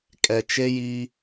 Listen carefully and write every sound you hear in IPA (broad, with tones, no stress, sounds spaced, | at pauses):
kʼ ɛ˨ t͡ʃ e˦ j iː˦